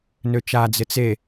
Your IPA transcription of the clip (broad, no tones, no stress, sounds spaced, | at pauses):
n ø t͡ʃ a d͡z ɪ t͡s e